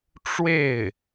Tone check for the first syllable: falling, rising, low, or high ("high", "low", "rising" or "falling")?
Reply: falling